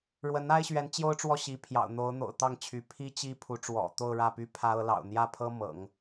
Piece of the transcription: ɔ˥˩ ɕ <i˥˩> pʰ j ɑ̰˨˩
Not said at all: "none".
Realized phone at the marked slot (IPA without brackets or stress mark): i˧˥